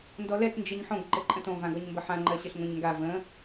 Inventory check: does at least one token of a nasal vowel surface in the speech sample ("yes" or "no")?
yes